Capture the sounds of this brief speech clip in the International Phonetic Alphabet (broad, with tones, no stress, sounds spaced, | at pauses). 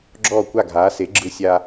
ɡ͡ǁ ɔː˥˩ kʷ a˥˩ ɡʱ aː˩˥ s e˩˥ ɡ͡ǁ ɯ˧ sʲ a˧